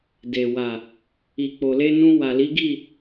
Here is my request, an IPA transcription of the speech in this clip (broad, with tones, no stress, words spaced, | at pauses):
de˨ wa˨ | i˨k͡po˨le˧nũ˧ wa˨li˨˦ɡi˦˨